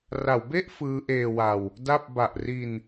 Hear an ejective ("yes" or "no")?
no